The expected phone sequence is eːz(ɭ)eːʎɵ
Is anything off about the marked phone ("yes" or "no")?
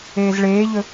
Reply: no